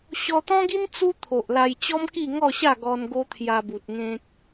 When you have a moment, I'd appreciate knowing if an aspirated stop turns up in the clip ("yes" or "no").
yes